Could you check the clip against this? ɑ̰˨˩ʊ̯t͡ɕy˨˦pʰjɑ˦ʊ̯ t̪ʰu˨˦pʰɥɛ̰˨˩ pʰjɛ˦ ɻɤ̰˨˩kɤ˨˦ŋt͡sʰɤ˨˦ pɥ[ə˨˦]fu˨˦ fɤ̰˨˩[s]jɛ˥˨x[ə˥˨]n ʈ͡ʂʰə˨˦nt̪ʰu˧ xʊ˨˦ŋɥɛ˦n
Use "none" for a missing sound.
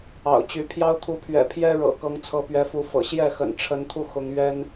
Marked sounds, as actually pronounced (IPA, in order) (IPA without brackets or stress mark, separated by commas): ɛ˨˦, ɕ, ə̰˨˩